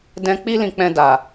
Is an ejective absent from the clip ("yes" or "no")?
yes